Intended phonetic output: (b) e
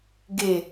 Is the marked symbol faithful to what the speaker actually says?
no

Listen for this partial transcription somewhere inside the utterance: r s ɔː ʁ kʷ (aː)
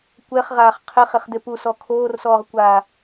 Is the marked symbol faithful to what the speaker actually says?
yes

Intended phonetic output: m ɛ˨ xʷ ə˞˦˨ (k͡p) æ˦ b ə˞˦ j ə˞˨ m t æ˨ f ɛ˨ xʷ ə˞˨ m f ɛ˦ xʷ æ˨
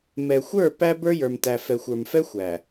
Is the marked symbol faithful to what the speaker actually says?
no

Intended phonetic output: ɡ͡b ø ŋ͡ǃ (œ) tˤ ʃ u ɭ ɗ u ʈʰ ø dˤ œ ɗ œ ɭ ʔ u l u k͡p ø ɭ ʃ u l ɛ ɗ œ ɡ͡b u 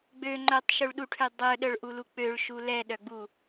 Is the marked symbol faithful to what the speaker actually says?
yes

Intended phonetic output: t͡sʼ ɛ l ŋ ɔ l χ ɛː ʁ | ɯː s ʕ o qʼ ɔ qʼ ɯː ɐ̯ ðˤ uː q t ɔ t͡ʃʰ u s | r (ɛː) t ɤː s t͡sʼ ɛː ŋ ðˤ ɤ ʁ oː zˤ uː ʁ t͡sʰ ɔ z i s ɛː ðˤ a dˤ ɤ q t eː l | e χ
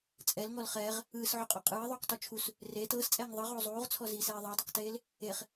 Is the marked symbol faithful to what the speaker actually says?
no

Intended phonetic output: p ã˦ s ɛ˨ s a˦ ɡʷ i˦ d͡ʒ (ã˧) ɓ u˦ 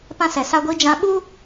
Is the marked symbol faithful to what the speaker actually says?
yes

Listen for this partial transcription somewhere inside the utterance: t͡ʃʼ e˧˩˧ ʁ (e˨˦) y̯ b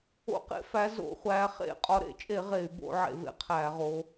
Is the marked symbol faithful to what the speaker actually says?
no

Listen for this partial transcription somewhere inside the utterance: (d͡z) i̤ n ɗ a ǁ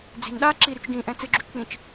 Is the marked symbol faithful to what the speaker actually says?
yes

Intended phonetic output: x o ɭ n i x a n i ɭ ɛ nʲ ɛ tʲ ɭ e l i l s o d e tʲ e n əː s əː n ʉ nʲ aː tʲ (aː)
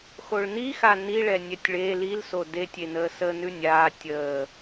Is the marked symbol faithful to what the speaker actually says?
no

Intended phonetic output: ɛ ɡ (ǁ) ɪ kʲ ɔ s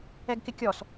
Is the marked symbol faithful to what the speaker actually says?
no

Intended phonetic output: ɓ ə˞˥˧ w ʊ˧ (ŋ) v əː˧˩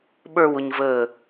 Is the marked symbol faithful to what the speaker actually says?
no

